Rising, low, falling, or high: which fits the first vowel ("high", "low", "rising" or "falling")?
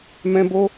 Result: high